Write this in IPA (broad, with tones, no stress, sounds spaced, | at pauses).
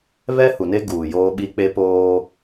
β ɛ˦ h u˨ n e˦ ɡ uː˨ j oː˦ ɓ i˦ k͡p e˦ p oː˦